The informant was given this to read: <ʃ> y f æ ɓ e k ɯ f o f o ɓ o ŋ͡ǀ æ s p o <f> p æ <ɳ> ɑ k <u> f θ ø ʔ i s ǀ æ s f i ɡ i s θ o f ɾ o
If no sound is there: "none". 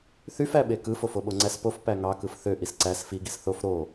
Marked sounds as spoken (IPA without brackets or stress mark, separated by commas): θ, f, ŋ, ɯ